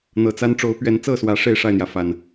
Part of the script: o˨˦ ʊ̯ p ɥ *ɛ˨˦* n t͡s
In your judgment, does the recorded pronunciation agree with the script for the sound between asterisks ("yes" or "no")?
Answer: yes